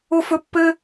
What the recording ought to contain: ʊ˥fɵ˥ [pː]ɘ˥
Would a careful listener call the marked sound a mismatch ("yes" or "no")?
no